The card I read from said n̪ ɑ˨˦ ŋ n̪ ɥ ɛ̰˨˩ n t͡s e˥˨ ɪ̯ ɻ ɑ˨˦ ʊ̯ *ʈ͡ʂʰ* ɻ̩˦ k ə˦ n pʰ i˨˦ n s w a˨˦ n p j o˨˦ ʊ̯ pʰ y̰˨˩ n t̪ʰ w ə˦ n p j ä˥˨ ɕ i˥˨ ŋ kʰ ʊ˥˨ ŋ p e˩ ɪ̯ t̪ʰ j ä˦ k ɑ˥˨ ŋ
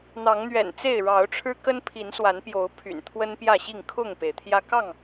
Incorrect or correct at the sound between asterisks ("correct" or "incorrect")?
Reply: correct